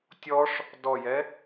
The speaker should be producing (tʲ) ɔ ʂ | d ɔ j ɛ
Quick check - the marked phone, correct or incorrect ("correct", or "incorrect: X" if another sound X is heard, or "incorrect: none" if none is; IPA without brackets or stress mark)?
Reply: correct